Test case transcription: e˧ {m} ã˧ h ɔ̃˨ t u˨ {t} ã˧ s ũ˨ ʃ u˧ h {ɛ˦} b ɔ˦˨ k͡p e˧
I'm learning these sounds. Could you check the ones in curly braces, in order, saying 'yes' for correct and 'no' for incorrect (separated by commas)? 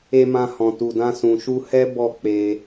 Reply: yes, no, yes